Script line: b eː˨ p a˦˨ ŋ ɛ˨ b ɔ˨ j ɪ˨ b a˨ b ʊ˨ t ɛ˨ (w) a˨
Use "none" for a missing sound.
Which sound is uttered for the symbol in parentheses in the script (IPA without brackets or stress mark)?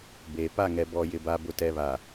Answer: β